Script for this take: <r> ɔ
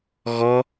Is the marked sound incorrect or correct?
incorrect: ɣ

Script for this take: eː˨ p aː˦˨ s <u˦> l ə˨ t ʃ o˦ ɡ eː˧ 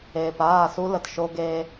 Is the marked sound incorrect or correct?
correct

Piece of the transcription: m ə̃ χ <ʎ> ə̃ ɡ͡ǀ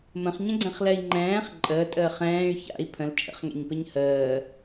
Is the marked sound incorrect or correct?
incorrect: ɲ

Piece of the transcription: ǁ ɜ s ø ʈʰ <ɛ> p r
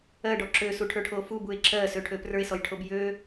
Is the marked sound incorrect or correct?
incorrect: ø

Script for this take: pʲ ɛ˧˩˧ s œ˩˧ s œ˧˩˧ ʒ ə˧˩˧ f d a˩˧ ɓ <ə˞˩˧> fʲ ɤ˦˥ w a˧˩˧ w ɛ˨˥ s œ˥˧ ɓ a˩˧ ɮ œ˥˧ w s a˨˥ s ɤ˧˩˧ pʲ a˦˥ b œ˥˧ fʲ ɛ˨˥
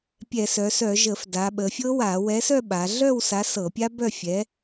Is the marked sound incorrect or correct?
incorrect: ə˩˧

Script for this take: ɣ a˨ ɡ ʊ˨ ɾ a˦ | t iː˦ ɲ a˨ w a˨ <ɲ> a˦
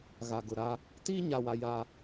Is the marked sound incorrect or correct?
incorrect: j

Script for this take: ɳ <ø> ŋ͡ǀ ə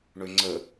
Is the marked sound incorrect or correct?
correct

